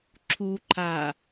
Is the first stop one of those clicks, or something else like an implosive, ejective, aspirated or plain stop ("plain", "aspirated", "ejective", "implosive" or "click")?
click